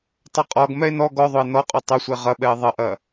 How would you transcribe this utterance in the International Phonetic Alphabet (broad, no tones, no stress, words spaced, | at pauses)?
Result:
tˤɐqʼɔɡ mɛe̯nɔ ɡɔðˤoe̯ nɔqʼo tˤosʷe ʁɐɓɛe̯ ðˤɐʔɐ